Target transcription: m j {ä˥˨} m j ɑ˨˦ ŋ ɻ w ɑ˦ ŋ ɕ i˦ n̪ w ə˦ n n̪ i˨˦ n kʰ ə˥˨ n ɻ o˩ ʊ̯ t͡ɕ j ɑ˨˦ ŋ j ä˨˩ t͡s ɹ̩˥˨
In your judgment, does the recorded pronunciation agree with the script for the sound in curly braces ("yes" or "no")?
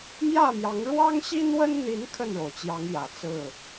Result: yes